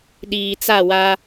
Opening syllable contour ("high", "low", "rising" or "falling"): low